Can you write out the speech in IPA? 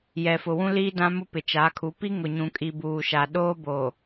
jɛ˨fʊ˨ wũ˦ liː˦dã˦mʊ˦ pɪ˨t͡ʃaː˨˦kʰu˨˦ pi˦ ŋʊ˨ɲũ˨kʼi˨ buː˨ʃa˨ ɗoː˦boː˨

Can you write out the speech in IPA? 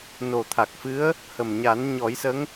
no˨˩t̪ʰa˨˩k̚fɨ˧˥ə̯ | hə˨˩mɲa˨˩˦n ɲɔ˨˩˦jsə˧˥ŋ

